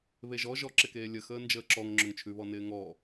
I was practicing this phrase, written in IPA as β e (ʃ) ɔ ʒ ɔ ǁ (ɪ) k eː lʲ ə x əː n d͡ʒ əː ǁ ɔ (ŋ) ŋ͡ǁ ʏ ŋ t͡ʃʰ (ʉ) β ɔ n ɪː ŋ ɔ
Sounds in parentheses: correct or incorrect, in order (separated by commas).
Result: incorrect, correct, correct, correct